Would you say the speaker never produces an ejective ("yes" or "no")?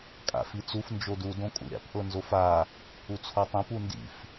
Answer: no